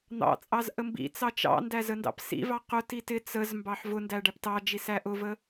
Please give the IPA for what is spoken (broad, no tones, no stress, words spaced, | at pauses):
n̪ɑ̰t͡sʼɑz ʔəmbḭt͡sɑ t͡ʃɑ̰ndæ zəndɑ̰psḭvɑ qʊti tɪ t͡səzmbɑħ vʊndæ ɖæptɑd͡ʒi sæʔʊvə